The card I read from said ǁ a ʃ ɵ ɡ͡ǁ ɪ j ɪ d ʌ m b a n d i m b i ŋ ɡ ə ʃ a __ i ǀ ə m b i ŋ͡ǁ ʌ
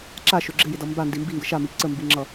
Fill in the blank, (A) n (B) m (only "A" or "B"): B